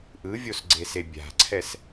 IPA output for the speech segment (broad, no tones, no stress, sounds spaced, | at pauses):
ʔ ɯ vʲ o s ɡ͡ǀ e s e bʲ a̤ ǀʰ ɛ s